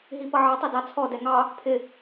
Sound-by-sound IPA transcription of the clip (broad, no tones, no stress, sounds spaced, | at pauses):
ɦ i p ʌ ʕ ɑ tˤ ɛ d ɑ t͡sʰ ɔ d ɛ ŋ ɑ | pʰ ɪ